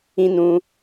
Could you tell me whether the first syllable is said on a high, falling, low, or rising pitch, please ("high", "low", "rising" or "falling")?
high